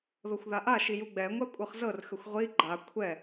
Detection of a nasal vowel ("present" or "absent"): absent